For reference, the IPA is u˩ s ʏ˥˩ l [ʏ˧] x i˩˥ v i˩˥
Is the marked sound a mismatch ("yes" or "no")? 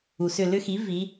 yes